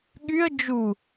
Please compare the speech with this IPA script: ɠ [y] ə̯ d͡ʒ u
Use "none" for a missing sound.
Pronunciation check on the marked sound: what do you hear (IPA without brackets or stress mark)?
y